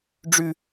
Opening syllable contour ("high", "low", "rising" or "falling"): falling